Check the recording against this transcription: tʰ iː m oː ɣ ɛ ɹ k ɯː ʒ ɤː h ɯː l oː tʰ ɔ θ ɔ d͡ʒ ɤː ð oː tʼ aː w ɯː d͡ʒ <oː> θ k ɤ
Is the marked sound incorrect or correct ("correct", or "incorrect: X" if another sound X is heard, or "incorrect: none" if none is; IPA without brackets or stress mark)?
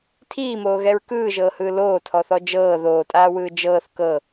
incorrect: ɤː